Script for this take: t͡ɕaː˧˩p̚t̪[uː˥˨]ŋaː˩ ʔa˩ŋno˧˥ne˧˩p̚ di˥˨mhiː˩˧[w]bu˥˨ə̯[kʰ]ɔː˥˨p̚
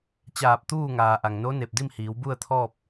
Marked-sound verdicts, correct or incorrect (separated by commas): correct, correct, incorrect